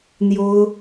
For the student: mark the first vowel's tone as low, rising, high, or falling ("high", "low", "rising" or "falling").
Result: high